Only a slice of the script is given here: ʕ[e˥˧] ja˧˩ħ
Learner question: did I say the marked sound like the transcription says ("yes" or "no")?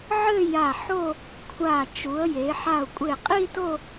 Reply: no